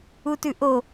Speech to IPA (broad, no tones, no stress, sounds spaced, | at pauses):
u t ʉ ʔ o